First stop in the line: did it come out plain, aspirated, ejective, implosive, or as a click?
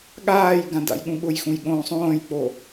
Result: implosive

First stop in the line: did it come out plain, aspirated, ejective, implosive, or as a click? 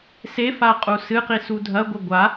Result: ejective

